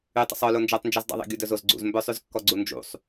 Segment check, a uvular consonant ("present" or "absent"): absent